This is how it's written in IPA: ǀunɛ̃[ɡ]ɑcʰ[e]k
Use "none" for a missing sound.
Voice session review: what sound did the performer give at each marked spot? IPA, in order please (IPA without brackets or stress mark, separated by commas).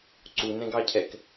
ɡ, ɛ